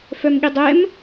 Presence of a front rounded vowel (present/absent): present